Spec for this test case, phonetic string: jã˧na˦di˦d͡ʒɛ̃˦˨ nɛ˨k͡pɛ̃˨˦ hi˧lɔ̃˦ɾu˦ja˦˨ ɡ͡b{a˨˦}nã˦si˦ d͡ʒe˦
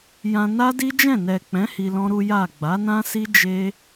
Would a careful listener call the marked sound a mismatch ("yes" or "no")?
no